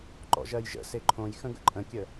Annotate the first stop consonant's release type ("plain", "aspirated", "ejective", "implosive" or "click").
click